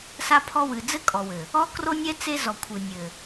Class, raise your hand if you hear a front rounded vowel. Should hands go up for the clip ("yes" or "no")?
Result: no